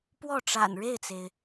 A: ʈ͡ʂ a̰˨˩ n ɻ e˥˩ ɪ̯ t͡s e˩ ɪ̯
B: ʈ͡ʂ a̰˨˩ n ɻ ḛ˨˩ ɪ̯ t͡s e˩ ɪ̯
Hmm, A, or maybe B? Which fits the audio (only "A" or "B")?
A